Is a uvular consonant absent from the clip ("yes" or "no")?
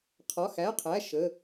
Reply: no